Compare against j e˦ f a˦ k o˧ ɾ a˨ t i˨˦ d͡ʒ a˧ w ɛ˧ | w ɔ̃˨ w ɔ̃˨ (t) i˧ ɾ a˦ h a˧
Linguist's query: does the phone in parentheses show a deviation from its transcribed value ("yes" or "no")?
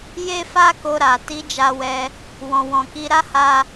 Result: yes